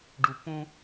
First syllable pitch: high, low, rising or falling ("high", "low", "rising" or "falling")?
low